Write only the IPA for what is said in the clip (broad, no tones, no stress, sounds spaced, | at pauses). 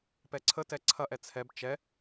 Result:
p ɛ ǀʰ ə t ɛ ǀʰ ɐ ʔ ɛ t͡sʰ ɛ b t͡ʃ ɛ